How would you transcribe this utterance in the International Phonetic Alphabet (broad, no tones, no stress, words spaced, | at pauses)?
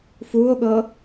fuo̯ɠɤ